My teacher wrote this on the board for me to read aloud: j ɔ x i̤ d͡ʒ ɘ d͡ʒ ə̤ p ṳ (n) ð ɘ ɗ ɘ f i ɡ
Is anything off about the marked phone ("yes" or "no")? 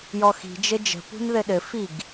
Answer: no